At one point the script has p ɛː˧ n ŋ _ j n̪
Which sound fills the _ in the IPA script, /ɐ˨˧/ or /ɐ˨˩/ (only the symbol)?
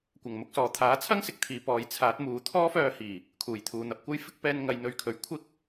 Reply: ɐ˨˧